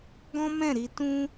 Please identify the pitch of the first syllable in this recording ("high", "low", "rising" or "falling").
high